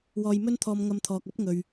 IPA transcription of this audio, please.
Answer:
w ɔː˧ j m ɵ˥ n t̪ʰ ɔː˧ m ŋ ɐ˧ m t̪ʰ ɔː˨ k̚ ɐ˥ p̚ ŋ ɵ˨ ɥ

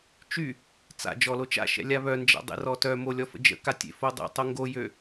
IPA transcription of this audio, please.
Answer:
t͡ʃ y | t͡s a̰ d͡ʒ ɔ l o t͡ʃ a̰ ʃ ɛ̰ lʲ a β œ n d͡ʒ a̰ dˤ ḛ r ɔ t œ m o lʲ ɔ f ə̰ d͡ʒ ə̰ k a tʲ ḛ f o dˤ ḛ tˤ o ŋ ɡ o j ø

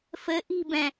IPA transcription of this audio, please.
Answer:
f ɘ ʔ i̤ b ɛ̃

